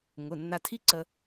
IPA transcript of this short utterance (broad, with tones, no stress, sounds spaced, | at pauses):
ŋ ʊ˩˧˩ nː a˧ tʰ i˥ ǀ ə˧